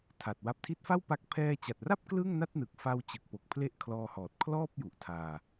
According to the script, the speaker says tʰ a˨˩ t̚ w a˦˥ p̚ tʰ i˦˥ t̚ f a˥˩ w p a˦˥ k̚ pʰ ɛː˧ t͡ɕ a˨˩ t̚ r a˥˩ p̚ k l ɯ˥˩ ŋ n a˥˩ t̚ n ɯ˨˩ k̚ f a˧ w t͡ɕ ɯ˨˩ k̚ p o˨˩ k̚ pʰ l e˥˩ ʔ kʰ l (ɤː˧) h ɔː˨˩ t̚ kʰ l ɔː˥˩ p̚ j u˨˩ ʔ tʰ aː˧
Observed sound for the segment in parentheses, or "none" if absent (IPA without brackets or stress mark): ɔː˧